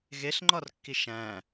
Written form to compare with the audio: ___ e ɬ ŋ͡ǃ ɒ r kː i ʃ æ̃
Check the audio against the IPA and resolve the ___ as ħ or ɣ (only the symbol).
ɣ